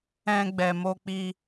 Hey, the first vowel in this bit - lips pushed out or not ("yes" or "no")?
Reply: no